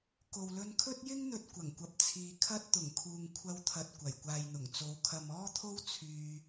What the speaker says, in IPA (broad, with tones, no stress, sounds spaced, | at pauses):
k o˨ w l ɵ˧ n kʰ ɵ˥ t̚ j ɪ˥ ŋ n̪ ɵ˧ t̚ kʷ ɐ˨˩ ŋ kʷ ɐ˨ p̚ t͡sʰ iː˨ kʰ ɐ˥ t̚ t̪ ʊ˨˩ ŋ kʰ uː˨ ŋ kʷʰ ɐ˧ w t̪ʰ ɐ˨ t̚ kʷ ɐ˨˩ j kʷ aː˨ j n̪ ʊ˨˩ ŋ t͡s o˨˧ w kʰ ɐ˨ m ɔː˥ t̪ʰ o˥ w t͡sʰ yː˧